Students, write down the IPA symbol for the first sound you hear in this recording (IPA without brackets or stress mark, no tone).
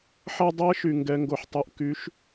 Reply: ħ